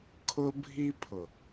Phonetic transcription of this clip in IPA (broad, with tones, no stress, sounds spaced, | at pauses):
kʰ ʊ˦ bʱ i˦ pʰ ʊ˨